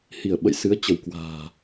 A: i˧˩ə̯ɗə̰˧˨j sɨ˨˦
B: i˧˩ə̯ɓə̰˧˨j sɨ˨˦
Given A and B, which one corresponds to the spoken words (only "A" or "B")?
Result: B